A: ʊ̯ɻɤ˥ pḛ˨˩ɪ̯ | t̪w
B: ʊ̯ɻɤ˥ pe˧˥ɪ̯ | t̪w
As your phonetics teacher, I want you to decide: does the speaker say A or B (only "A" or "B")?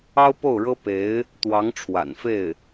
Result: B